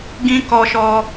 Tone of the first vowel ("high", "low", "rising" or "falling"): high